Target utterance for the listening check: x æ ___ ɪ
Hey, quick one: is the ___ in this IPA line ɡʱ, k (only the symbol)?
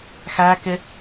k